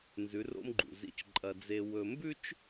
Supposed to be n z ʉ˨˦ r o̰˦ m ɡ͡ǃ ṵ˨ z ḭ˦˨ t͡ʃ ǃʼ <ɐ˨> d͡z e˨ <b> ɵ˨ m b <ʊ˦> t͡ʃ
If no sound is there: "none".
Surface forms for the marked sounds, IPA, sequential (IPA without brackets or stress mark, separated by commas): ɐ˨, w, ʉ˦